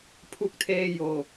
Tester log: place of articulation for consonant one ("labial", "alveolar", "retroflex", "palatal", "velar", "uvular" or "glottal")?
labial